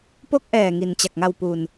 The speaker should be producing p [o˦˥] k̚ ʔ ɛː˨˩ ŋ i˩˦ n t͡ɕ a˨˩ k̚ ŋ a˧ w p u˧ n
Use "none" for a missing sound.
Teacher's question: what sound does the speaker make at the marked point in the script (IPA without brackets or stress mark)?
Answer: o˦˥